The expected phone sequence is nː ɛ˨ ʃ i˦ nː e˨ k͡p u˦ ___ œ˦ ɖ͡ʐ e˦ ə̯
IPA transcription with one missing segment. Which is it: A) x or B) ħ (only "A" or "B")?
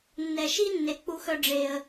A